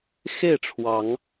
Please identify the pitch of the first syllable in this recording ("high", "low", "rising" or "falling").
falling